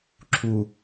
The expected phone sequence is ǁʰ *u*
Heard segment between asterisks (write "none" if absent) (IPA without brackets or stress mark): u